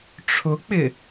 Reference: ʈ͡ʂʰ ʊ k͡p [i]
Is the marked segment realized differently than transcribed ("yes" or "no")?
yes